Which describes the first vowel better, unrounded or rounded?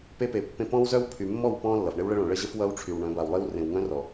unrounded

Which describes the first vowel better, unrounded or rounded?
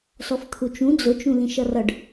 rounded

